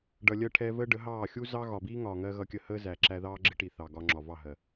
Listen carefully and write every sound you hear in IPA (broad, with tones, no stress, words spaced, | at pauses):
ɖʌ˨lʲɜ˧ʈʰɛː˧ vəː˦ɖə˨˦ɦɑː˦˨ xʲu˦zɑ˦ ɣɒ˨biː˦ŋɒː˨ŋɜ˧ ɣʌ˧kʲə˧həː˦ zæ˨ ǁæ˧ðɑː˦ɡ͡ǁɪ˦ʈi˨ θɑ˨ɡɒ˧ŋ͡ǁɒ˨ vɑ˦˨ɦɜ˨